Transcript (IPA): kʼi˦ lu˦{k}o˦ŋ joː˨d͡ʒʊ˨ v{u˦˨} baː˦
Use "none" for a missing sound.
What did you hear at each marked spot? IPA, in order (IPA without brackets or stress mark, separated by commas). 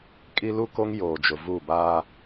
k, u˦˨